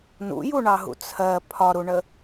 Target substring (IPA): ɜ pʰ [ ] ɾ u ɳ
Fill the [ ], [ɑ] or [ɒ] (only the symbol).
ɒ